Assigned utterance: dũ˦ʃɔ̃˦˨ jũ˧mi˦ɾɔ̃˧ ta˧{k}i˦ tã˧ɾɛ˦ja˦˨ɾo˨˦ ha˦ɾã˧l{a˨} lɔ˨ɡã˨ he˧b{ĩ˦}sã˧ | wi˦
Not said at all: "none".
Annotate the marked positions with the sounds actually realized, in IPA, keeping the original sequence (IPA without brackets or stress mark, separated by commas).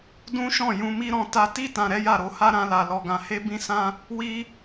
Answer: t, a˨, ĩ˧